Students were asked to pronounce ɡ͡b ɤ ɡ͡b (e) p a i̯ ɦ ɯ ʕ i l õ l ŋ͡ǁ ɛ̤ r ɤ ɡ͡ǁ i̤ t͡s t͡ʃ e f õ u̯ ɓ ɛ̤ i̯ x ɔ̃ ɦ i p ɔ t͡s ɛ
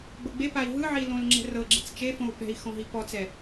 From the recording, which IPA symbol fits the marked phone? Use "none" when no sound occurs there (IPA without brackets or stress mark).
e